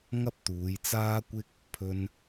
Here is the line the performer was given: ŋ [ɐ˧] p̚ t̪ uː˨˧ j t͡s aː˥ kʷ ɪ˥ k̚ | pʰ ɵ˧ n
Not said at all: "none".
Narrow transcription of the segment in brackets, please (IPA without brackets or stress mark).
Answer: ɐ˥